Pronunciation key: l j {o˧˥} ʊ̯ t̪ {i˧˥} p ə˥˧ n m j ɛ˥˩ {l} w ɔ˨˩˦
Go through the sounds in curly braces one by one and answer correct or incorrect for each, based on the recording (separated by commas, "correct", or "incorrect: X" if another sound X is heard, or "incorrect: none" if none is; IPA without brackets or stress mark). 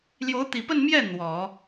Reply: correct, incorrect: i˨˩, incorrect: n̪